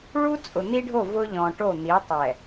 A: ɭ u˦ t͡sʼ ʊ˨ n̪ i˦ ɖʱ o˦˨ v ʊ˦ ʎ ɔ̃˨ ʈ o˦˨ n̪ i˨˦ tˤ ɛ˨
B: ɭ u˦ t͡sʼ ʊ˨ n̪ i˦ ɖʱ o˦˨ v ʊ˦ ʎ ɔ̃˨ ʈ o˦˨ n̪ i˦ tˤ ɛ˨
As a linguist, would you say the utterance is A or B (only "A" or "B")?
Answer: A